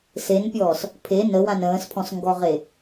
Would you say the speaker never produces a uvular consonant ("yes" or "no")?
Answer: no